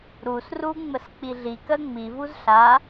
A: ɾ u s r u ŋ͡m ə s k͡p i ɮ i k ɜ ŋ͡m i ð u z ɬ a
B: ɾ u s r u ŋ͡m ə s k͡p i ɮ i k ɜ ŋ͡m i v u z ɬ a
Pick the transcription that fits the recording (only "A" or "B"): B